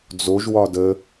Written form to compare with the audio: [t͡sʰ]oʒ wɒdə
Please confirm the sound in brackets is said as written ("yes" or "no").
no